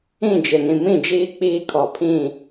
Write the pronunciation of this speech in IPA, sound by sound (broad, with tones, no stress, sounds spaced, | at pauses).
ĩ˦˨ d͡ʒ ɪ˨ n ĩ˨ m ĩ˦˨ d͡ʒ iː˦ k͡p iː˦ kʰ ɔ˨ pʰ ĩ˦˨